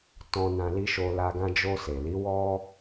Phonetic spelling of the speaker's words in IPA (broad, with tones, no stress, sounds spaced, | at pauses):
t ɔ̃˧ n ã˧ l i˧ ʃ o˧ l a˧ ɡ ã˧ d͡ʒ o˧ s e˨ l i˨˦ w ɔ˦